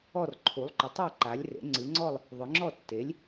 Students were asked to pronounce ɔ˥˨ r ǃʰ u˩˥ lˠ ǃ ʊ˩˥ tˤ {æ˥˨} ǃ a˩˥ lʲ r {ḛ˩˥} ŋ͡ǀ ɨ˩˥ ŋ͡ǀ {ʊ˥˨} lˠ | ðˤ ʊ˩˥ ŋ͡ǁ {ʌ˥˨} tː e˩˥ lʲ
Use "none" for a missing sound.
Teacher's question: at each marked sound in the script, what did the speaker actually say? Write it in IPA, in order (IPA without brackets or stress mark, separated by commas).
a˥˨, ḛ˩˥, ɔ˥˨, ɔ˥˨